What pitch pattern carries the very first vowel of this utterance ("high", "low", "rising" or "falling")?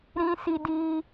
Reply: high